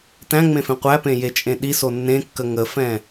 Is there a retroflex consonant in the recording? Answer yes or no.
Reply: no